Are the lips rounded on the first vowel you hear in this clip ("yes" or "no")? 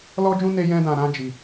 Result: yes